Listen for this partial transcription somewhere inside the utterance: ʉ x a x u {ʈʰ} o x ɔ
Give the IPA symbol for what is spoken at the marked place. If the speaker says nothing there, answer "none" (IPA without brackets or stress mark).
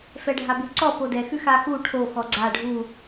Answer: ʈʰ